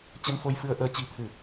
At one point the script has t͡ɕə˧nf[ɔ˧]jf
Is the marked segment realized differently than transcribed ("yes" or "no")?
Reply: yes